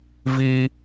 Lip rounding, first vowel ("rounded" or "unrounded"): unrounded